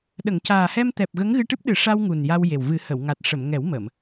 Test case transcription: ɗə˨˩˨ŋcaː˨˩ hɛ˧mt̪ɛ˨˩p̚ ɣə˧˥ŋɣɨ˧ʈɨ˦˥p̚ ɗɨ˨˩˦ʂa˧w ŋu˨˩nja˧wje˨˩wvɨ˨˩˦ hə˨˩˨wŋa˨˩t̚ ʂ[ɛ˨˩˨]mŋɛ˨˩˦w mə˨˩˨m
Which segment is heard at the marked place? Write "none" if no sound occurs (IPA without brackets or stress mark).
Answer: ə˨˩˨